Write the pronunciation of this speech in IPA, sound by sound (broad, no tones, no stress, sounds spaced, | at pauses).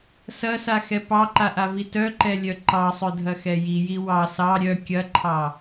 s ɐ s a x ɛ p ɑ ǃ a ʔ a v i t œ ǃ ɛ lʲ œ ǃ ɑ sˤ œ dʱ ɐ x ɛ j i j i w ɑ s ɑ ɾʲ œ kʲ ɐ ǃʰ ɑ